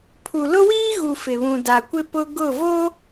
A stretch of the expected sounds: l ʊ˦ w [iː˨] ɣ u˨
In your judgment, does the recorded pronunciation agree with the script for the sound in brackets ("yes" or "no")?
no